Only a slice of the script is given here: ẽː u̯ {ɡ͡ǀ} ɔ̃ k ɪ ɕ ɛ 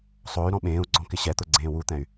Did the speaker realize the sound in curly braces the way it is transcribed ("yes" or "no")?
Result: yes